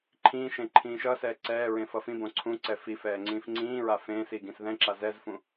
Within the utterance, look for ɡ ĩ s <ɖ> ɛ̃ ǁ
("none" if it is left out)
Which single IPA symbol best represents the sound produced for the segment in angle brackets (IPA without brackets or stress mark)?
ð